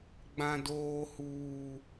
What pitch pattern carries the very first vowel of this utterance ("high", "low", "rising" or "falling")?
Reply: low